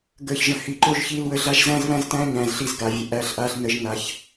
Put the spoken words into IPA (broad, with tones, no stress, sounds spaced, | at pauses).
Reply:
ɡ əː˨ ç ʒ ə̃˨ h i˨ ǃ o˦ ʒ ç iː˦ l w ə˦ ɮ a˦ ʒ z æ̃ː˦ z β æ̃˦ z t æ̃ː˦ ɲ æ̃ː˨ z ɬ i˦˨ z ɡ a˨ vʲ ə˨ ʔ æ˦ ɬ ʔ a˦ ɬ n ə˦ ʒ n a˦ ç